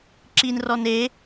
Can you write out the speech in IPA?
ǁ i n r ɔ n e

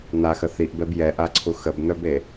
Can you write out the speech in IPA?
n̪ a x ə θ i ʔ b ɛ b j ɛ ʔ a ǀʰ u x ə b n̪ œ b e

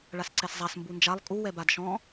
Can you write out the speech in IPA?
ɭ a s ǀ ɛ s zˤ a s m b u n d͡ʒ a lˠ kʼ u w ɛ b a d ʃ ɔ̃

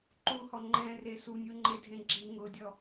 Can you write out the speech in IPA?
ǃ u h ɔ ŋ͡ǃ ɛ̃ r e s u nʲ u ŋ͡ǃ e dʱ ẽ ɡ͡ǁ i ŋ ʊ dʲ ɔ

